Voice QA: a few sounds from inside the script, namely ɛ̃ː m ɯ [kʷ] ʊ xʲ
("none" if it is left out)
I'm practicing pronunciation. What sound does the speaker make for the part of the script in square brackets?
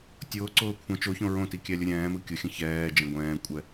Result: kʲ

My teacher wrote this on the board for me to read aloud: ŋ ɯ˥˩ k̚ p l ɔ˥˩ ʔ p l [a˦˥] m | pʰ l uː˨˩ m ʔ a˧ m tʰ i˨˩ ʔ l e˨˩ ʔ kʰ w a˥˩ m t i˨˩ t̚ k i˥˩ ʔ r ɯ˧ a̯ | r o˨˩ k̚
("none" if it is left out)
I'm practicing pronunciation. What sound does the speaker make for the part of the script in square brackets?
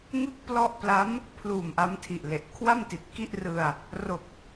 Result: a˦˥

